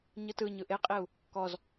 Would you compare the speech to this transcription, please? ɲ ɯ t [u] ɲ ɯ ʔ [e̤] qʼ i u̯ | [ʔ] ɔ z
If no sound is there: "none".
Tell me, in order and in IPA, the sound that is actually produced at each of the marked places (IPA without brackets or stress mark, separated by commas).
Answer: ɯ, e, k